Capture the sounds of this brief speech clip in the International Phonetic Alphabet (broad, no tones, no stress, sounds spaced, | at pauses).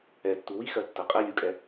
ɛ tː u w i x ɜ tː ɜ qʼ ɛ lʲ u kʼ ɛ